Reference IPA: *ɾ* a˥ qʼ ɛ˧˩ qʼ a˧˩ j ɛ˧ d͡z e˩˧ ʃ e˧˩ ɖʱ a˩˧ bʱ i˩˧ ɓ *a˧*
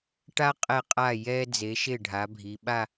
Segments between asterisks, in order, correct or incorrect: incorrect, incorrect

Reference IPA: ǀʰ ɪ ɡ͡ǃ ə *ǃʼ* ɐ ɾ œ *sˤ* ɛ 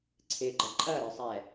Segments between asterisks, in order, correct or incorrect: correct, correct

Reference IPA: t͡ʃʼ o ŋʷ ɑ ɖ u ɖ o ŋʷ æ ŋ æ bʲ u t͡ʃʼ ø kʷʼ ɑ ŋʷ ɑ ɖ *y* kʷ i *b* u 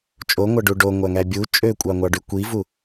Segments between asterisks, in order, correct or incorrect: correct, incorrect

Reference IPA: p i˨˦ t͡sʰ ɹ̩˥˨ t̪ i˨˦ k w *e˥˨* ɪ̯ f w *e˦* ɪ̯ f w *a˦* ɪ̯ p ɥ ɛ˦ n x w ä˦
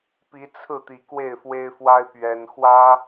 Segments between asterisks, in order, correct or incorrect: correct, correct, correct

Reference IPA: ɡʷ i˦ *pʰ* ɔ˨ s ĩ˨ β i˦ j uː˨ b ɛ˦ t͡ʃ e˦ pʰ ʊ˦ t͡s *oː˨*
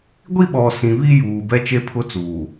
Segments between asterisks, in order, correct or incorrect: incorrect, incorrect

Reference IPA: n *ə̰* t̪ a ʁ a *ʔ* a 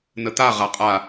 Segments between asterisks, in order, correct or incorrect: incorrect, incorrect

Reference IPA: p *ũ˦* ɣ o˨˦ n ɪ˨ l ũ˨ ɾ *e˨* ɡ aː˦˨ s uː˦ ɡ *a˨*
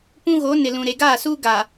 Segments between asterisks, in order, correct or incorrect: correct, correct, correct

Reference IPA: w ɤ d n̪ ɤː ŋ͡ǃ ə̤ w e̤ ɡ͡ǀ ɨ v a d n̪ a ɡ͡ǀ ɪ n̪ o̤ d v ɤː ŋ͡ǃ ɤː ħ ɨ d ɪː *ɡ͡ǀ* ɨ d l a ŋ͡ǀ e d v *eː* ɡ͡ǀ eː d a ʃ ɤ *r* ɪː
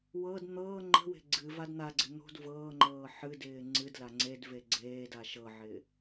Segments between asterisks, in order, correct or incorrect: incorrect, incorrect, incorrect

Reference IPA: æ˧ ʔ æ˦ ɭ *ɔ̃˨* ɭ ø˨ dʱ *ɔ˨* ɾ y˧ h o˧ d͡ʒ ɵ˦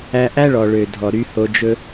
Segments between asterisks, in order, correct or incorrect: incorrect, correct

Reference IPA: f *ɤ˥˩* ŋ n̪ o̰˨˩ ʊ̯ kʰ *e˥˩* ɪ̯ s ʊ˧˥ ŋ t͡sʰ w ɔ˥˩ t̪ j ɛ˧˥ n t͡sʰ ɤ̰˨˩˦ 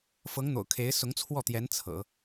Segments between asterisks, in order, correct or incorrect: incorrect, incorrect

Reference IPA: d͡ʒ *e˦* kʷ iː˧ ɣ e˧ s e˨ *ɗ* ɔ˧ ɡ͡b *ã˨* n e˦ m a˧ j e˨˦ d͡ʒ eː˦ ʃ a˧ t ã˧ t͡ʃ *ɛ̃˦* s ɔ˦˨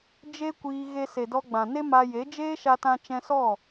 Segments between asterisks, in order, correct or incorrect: correct, incorrect, correct, correct

